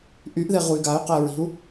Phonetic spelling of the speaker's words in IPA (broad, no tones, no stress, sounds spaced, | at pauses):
ʔ y ʔ ð e ʁ u y̯ ɡ a y̯ q əː ɹ i̤ u̯